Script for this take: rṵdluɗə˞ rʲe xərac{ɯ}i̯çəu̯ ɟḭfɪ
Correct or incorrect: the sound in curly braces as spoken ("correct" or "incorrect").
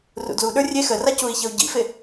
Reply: incorrect